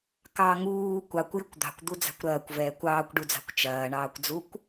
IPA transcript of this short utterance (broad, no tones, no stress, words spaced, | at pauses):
kɑ ŋuː kʷɑkʷjɪkʷ d̪ɑ̤kʷd̪ud͡zɑ̤kʷ ɾɐːkʷvɛːkʷ ɑːkʷɖud͡zɑ̤kʷ t͡ʃɐːɳɑːkʷd͡zukʷ